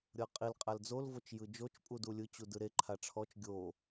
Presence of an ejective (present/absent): present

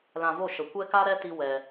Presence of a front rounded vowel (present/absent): absent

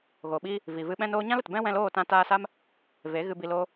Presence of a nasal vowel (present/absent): present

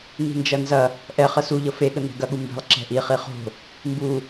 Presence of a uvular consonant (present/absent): present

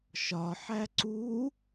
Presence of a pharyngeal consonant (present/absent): present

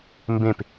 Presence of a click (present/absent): absent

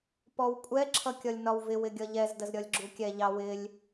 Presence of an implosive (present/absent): absent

